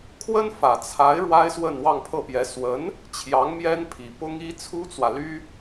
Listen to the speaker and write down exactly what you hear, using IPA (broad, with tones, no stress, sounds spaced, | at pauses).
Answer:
kʰ w ə˥ n f ä˨˩ t͡sʰ a˧˥ ɪ̯ ɻ w a˥ ɪ̯ s w ə˥˧ n w ɑ˥˧ ŋ pʰ ɤ˥˩ p j ɛ˧˥ s w ə˧˥ n | t͡ɕʰ j ɑ˧˥ ŋ m j ɛ˥ n pʰ i˨˩ p ʊ˥ ŋ i˥ t͡sʰ u˥ t͡s w ä˨ l y˥